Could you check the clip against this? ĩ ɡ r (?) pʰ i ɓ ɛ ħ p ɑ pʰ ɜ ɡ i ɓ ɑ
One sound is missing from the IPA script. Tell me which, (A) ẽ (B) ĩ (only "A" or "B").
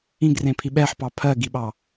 A